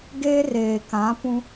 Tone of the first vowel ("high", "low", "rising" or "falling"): high